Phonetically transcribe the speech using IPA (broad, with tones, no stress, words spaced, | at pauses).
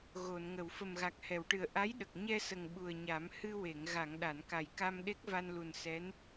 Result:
ɣo˨˩˨nŋə˨˩˨w fə˨˩mɣa˨˩k̚ hɛ˨˩˨wʈɨ˨˩ə̯ ʔa˧˥jɗə˨˩k̚ ɲɛ˧sə˨˩ŋ ɓu˨˩ə̯ɲa˨˩˦m hɨ˧we˨˩˨ŋ ɣa˨˩˨ŋ ɗa˨˩˨nka˨˩jka˧m ɗe˦˥k̚va˧nlu˨˩n sɛ˧˥n